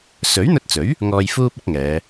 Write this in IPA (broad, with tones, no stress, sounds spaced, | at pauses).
s ɵ˨˥ ɥ n̪ ɵ˧ t̚ t͡s ɵ˨˥ ɥ | ŋ ɔː˧ j f uː˥ p̚ ɐ˥ k̚ ŋ ɛː˨˧